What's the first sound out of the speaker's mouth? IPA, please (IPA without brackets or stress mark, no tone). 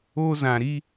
o